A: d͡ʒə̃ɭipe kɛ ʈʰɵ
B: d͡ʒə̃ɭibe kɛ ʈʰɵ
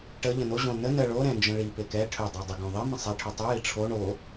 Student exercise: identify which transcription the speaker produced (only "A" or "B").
A